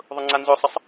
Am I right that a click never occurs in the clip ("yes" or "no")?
no